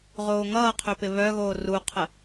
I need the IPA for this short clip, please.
ʁ oː ŋ ʌː qʰ ø p ɪ β œ ɣ oː r u qʰ ə

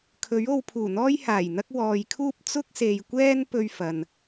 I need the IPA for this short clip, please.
kʰ ɵ˨˥ ɥ o˧ w pʰ uː˨˩ n̪ ɔː˥ j h aː˨˩ j n̪ ɐ˥ k̚ w ɔː˨ j kʰ uː˥ p̚ t͡s ʊ˥ k̚ s e˨ j kʷ ɛː˥ n p ɵ˥ ɥ f ɐ˨ n

